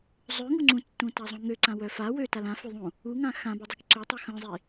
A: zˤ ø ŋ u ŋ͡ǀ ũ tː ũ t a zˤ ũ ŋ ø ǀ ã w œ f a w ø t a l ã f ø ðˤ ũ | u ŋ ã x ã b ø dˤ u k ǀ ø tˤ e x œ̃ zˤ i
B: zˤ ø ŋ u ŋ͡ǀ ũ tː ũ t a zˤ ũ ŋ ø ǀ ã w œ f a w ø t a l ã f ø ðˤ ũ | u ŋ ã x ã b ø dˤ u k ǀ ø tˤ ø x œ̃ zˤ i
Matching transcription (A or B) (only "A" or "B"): B